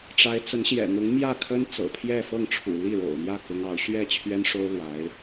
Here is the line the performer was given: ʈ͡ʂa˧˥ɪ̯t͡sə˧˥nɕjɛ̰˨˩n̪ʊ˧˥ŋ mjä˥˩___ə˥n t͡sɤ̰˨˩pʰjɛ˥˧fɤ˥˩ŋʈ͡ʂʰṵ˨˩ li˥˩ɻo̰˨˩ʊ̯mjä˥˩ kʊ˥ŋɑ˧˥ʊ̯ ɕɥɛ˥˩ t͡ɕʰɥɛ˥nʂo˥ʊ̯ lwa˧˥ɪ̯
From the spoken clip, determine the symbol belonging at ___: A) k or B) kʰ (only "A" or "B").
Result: B